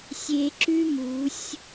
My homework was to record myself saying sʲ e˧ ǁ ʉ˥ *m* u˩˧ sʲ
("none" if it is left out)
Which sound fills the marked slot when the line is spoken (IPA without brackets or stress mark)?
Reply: m